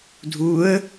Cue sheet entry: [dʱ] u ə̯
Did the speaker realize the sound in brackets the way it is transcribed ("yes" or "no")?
yes